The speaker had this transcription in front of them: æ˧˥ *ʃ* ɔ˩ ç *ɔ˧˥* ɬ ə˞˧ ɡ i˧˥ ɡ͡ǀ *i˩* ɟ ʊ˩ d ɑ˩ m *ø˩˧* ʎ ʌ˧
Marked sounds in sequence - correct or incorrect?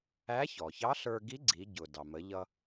incorrect, incorrect, incorrect, incorrect

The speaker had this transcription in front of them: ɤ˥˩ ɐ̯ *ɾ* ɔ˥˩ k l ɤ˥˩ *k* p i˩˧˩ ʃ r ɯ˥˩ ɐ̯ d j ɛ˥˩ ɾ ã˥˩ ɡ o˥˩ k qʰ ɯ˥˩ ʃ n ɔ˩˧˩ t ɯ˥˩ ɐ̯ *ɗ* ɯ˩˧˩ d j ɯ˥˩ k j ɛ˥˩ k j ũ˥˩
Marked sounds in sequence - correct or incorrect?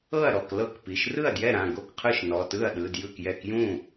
correct, correct, correct

